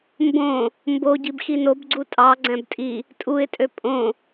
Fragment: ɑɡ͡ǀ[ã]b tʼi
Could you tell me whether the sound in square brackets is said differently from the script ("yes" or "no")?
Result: yes